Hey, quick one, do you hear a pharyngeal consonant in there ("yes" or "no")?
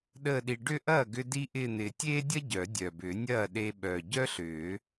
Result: no